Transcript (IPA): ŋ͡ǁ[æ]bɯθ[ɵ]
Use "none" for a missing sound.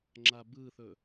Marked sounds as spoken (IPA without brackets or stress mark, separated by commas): a, ɵ